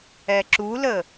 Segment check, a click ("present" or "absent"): present